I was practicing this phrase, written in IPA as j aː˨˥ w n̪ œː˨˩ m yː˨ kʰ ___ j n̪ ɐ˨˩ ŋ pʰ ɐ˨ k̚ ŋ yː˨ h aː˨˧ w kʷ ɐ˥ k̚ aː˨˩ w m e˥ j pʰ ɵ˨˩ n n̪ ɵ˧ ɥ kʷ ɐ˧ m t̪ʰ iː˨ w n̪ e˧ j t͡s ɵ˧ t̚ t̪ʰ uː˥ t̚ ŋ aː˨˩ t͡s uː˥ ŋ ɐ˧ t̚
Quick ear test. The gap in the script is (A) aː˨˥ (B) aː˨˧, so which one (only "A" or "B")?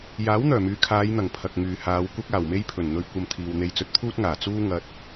B